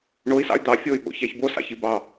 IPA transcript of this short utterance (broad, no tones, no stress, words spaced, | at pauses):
ɳoi̯sɑ̰y̯ d̪ɑ fʲoy̯ɓo̰ çæçbo sɑ̰çibɑ